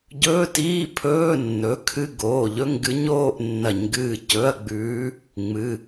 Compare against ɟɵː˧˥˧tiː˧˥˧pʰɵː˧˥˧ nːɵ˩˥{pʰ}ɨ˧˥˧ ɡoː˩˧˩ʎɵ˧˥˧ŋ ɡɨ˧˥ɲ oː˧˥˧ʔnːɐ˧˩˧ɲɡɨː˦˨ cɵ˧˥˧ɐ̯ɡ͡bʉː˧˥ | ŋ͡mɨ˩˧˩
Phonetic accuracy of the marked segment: incorrect: kʰ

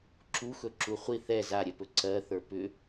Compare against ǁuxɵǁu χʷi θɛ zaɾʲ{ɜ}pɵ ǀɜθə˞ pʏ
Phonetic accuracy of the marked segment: incorrect: ɛ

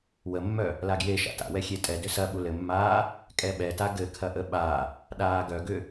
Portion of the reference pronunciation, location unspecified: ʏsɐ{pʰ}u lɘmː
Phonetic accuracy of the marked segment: incorrect: ɓ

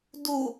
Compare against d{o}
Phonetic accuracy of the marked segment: incorrect: u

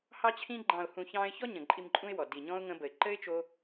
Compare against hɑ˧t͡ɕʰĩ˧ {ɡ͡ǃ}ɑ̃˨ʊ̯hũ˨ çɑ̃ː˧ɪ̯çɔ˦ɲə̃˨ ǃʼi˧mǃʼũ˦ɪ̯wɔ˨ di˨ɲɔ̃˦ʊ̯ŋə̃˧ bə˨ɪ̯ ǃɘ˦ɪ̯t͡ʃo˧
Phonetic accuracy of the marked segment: correct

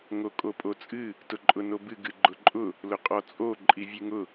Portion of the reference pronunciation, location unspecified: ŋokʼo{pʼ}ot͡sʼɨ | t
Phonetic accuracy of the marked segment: correct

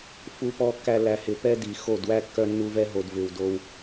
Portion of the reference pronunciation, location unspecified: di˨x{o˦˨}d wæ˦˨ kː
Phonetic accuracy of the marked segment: correct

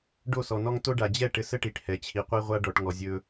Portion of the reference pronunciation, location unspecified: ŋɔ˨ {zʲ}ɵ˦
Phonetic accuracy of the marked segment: correct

